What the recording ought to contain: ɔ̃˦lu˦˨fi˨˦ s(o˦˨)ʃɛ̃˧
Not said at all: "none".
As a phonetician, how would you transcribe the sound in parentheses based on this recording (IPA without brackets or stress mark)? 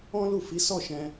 ɔ˦˨